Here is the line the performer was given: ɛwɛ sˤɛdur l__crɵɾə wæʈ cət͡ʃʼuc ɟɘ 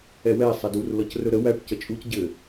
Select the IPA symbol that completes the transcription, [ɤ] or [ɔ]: ɤ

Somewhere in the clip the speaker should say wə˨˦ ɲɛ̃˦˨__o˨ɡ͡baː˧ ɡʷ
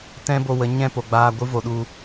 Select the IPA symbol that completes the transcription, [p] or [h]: p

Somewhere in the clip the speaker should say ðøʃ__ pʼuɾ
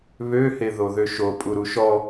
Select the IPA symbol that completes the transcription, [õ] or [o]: o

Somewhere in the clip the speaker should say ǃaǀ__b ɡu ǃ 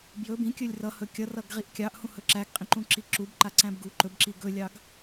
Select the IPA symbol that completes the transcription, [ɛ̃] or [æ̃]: æ̃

